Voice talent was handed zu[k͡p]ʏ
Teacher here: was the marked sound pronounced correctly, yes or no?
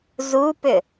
no